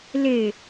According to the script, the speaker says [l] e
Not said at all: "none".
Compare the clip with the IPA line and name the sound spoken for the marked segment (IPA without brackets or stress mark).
l